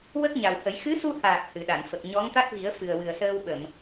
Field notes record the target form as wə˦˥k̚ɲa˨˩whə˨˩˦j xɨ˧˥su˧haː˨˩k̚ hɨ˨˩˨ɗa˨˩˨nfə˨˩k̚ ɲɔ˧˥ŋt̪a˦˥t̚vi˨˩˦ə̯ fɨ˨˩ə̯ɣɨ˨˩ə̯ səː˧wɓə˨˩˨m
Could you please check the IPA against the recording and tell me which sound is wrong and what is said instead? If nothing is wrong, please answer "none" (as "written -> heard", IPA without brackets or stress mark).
ɣ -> w